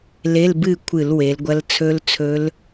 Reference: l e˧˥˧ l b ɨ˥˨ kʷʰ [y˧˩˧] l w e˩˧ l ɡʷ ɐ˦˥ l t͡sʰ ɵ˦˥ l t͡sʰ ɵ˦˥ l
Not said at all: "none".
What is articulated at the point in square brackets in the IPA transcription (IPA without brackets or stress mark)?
ɨ˧˩˧